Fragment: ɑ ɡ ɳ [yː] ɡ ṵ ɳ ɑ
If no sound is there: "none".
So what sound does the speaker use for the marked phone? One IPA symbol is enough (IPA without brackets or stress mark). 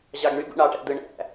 y